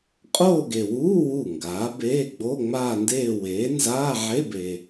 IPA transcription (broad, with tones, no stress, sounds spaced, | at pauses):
qʼ oː˥˧ ɡ e˨ w uː˧˥˧ w u˥˩ ŋ ɡ aː˩˥ b eː˧˥˧ ɡ͡b o˧˥˧ ŋ͡m aː˥˧ n d eː˥˧ w eː˩˥ n z aː˧˥˧ ʕ e˧˥˧ b e˨